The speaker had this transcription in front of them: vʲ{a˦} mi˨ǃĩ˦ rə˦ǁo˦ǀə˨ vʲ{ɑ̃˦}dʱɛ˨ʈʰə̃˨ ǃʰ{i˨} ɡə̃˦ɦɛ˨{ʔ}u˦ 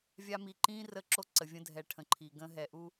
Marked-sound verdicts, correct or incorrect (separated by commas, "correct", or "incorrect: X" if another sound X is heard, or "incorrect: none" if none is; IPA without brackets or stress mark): correct, incorrect: ə̃˦, correct, correct